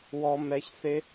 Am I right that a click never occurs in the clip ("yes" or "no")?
yes